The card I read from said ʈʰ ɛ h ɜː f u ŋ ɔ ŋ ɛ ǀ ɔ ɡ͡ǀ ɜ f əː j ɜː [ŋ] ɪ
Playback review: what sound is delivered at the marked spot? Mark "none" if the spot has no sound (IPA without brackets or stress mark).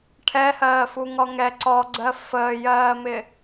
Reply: m